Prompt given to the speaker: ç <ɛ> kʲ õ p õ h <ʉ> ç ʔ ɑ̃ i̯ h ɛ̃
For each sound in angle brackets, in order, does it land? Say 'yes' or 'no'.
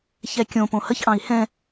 yes, no

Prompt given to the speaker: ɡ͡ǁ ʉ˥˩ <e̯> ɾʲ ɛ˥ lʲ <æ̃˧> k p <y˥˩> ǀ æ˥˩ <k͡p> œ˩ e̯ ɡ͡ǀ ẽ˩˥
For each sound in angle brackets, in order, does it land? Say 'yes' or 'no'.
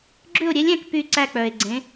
no, yes, yes, yes

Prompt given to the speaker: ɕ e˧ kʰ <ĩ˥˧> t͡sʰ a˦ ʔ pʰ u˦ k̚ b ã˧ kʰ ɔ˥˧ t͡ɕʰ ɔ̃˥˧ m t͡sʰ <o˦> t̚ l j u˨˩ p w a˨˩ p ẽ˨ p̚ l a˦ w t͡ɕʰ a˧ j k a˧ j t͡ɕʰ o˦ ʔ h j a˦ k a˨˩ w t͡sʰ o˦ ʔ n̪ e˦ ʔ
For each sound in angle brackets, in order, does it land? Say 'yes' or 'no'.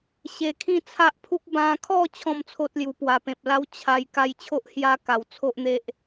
yes, yes

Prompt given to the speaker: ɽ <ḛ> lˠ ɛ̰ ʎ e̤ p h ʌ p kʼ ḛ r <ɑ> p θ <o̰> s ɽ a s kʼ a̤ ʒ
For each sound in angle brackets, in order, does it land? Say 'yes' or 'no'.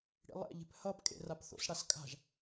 no, no, yes

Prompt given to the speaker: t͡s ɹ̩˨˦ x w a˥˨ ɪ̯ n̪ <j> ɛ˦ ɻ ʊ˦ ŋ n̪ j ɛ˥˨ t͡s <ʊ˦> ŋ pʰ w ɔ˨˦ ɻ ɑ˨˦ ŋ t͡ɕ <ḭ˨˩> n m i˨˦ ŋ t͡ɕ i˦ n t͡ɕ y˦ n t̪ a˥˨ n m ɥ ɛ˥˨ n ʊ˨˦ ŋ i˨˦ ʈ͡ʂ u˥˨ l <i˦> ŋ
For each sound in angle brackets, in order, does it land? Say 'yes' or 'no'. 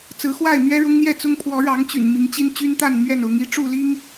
no, yes, no, yes

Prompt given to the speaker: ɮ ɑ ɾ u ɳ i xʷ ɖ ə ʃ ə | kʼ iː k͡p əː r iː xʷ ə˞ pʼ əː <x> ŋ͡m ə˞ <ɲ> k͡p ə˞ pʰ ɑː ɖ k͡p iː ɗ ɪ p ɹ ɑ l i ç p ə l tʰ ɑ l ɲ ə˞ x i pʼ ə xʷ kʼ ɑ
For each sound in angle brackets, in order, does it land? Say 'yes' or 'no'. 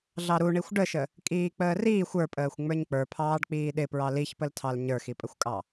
no, yes

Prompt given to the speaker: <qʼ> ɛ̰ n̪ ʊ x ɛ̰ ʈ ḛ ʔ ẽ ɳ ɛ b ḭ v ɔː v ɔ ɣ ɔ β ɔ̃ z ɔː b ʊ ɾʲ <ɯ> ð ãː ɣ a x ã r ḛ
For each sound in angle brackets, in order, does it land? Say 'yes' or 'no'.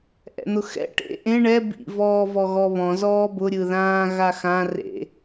no, yes

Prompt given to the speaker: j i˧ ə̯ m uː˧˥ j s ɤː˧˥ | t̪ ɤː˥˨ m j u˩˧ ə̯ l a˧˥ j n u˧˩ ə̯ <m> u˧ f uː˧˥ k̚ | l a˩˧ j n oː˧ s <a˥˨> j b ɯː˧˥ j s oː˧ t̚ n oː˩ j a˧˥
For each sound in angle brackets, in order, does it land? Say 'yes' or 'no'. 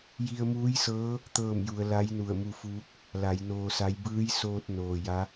yes, no

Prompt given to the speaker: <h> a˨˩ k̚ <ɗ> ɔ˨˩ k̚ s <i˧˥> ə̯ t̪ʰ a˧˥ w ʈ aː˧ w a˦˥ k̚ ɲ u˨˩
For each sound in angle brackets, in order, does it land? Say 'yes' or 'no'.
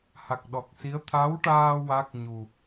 yes, yes, yes

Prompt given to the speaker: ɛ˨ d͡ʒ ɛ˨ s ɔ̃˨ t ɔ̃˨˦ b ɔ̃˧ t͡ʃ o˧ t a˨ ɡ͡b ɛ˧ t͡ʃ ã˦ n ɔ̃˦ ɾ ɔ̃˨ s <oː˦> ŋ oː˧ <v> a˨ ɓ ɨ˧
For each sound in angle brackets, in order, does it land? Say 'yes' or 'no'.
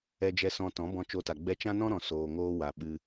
no, no

